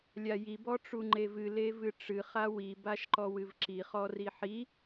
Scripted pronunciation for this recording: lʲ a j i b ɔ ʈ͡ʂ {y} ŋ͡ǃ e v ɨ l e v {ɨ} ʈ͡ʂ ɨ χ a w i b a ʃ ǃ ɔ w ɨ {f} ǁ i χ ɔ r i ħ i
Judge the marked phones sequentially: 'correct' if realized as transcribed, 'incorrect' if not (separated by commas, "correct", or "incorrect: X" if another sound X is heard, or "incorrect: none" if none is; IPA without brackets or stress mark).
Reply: incorrect: u, correct, incorrect: v